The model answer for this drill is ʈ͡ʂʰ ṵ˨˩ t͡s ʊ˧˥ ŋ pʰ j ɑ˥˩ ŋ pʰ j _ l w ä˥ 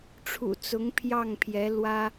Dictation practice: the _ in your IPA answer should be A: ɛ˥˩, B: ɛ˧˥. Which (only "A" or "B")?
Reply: B